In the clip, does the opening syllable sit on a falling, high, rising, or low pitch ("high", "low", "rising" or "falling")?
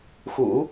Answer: low